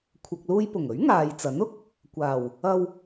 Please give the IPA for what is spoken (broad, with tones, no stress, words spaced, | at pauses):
kʷʰɐ˨k̚luː˧jpʊ˨˩ŋɵ˨˥ɥ ŋaː˨jt͡sɐ˨˥nʊ˧k̚ | kʷaː˨˩w | ɐ˧w